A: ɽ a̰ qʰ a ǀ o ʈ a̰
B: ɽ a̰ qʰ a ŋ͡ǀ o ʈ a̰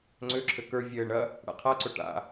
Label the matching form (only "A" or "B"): A